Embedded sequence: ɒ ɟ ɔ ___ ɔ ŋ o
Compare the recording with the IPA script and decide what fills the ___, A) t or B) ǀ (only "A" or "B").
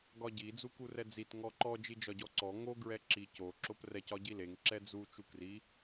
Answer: B